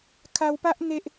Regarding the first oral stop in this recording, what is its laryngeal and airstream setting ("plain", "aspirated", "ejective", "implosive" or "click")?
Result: aspirated